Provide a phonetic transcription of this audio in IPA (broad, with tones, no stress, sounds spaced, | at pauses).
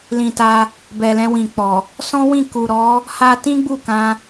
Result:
l ĩ˨ t a˧ | b ɛ˨ l ɛ̃˧ w ĩ˨ k͡p ɔ˨ | s ɔ̃˦ w ĩ˦˨ k u˨ ɾ ɔ˨˦ | h a˦ t ĩ˦ ɡ͡b u˦˨ k ã˧